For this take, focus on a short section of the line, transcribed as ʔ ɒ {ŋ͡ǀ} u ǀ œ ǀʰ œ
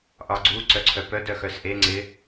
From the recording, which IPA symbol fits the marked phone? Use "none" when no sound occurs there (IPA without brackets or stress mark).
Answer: ɡ͡ǀ